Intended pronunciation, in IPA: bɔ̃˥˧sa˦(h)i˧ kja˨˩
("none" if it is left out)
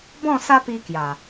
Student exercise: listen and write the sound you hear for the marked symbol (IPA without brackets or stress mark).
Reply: p